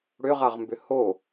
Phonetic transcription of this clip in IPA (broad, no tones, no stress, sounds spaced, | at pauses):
ɽ ʏ ʁ a ʁ m b ʏ h o